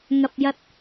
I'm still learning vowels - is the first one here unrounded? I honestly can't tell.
yes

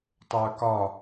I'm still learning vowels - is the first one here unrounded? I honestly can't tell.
yes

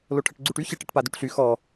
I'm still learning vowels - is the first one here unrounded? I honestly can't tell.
no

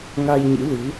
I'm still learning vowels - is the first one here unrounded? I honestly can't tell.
yes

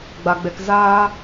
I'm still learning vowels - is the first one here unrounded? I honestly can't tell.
yes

